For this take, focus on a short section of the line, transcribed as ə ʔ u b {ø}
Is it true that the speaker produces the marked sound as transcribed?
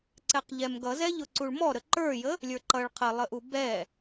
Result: no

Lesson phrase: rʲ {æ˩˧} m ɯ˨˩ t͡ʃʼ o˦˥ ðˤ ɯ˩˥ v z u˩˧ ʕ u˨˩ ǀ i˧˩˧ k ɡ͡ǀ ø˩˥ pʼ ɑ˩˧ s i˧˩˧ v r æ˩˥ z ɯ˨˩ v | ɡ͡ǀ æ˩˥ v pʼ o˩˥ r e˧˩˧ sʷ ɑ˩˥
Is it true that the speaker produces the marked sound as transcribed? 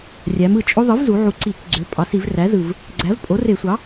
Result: yes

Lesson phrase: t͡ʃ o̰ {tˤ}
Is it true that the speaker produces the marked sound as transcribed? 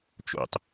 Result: yes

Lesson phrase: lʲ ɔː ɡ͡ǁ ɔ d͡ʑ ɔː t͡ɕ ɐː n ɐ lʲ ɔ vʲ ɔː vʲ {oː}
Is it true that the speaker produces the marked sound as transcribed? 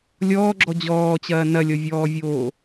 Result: yes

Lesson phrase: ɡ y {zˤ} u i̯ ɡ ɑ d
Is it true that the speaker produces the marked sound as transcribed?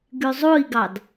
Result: yes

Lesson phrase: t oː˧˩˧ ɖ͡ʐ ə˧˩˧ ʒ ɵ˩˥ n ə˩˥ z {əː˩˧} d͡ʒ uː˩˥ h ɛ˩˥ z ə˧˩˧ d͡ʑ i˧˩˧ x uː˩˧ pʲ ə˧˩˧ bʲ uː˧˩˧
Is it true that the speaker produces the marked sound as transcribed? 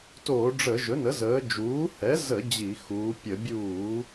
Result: yes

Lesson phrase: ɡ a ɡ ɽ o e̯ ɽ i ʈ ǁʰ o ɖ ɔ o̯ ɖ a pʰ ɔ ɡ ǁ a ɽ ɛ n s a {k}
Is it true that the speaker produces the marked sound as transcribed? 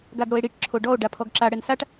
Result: no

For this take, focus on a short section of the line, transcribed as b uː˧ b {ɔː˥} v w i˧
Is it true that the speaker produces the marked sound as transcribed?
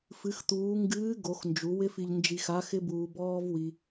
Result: yes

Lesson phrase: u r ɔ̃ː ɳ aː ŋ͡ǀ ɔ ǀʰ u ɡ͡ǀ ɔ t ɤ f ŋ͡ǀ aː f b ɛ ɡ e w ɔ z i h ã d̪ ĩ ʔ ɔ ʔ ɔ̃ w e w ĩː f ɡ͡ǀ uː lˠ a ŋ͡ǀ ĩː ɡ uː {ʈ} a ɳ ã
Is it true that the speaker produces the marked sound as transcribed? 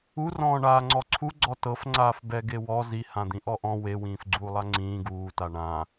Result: no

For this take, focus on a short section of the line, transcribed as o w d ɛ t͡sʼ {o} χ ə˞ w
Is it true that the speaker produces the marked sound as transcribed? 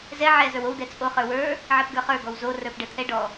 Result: yes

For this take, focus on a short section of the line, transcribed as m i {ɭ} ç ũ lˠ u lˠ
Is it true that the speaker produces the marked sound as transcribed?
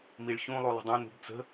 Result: yes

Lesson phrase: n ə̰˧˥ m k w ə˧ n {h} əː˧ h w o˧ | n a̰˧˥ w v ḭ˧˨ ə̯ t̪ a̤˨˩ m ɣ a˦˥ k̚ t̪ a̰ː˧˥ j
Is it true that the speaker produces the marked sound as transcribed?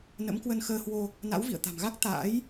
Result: no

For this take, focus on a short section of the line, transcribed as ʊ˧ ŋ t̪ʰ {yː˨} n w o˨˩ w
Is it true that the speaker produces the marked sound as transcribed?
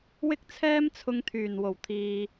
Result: no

